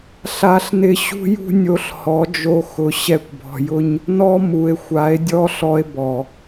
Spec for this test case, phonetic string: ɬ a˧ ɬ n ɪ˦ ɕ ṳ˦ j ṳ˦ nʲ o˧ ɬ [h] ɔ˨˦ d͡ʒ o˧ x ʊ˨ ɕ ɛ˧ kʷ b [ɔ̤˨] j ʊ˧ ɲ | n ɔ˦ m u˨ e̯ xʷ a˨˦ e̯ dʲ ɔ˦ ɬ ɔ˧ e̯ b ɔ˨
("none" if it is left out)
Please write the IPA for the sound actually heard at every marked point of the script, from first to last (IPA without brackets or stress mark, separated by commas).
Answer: h, ɔ̤˨